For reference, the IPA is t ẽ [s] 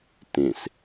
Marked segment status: correct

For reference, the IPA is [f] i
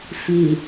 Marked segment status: correct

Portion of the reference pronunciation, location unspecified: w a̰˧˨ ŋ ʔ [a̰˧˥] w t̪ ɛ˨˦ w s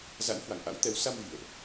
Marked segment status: correct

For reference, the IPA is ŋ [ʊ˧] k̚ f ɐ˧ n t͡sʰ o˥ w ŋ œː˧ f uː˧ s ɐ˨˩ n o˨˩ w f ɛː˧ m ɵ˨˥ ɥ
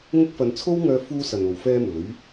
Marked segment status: incorrect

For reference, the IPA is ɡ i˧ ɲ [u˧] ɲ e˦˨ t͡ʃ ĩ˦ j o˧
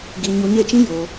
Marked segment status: correct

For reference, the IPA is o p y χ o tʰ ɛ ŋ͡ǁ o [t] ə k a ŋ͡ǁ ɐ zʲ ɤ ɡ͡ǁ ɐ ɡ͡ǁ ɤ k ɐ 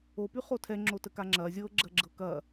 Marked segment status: correct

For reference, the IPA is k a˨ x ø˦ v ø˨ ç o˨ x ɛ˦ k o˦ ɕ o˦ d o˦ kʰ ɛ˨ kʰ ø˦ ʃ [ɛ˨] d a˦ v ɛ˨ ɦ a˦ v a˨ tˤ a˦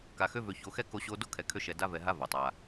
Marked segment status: correct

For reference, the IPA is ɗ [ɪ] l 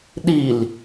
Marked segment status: incorrect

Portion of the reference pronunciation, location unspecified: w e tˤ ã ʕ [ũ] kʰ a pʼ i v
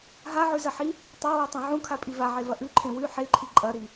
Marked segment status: correct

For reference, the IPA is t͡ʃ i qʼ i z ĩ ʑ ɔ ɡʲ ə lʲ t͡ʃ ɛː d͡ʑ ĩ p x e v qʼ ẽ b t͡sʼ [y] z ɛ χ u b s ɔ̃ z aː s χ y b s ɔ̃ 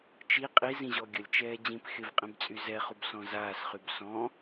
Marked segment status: correct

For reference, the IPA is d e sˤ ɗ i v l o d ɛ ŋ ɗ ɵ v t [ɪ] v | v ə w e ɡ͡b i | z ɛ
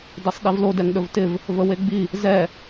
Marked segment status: correct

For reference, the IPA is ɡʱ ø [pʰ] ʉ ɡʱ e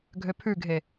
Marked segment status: correct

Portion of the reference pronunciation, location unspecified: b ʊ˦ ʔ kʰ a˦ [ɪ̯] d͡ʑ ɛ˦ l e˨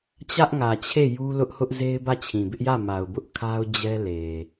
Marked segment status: incorrect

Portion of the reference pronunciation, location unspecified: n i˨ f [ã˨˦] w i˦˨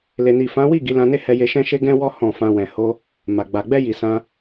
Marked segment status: correct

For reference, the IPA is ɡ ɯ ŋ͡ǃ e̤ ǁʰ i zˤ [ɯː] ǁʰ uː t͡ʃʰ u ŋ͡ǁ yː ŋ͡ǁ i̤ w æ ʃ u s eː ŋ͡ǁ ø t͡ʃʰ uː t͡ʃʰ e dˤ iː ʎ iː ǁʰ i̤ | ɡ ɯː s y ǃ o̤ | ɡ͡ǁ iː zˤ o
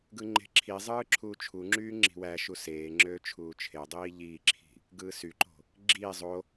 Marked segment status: correct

